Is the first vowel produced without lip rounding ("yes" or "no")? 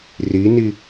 yes